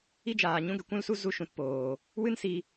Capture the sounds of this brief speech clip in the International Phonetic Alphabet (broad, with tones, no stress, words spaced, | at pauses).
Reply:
i˦d͡ʒaː˨ ɲũ˧ɡɛ˨kʷũ˧lsu˧ zu˧ʃũ˨tpoː˨ | wɨ˦nsi˧